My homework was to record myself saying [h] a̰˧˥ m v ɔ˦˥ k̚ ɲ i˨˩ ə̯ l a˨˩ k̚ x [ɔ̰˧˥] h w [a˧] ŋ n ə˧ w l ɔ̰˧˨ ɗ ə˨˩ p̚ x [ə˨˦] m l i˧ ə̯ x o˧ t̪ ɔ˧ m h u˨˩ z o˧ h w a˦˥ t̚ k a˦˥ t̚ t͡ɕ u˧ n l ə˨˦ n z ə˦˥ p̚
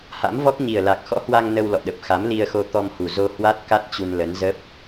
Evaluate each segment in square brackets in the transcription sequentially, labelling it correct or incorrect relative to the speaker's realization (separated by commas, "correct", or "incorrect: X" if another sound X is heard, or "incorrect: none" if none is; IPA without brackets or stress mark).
correct, correct, correct, incorrect: a˨˦